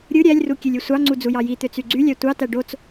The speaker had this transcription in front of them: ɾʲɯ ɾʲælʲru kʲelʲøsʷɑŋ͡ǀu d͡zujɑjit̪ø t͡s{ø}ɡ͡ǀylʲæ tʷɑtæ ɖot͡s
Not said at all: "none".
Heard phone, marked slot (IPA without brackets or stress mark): y